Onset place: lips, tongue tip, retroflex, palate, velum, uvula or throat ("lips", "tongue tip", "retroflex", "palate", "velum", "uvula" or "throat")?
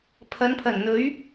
lips